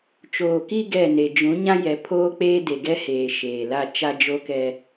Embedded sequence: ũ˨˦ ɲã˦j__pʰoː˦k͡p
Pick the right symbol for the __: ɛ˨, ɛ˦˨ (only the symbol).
ɛ˨